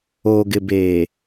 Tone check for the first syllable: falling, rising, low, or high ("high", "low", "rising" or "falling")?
low